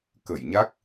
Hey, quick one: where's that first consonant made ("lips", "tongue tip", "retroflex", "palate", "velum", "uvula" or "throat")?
velum